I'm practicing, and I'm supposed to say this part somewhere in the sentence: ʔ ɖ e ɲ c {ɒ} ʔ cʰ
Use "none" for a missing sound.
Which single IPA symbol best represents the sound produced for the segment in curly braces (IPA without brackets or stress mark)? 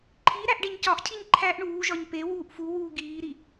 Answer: ɒ